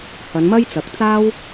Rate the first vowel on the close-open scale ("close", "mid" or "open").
open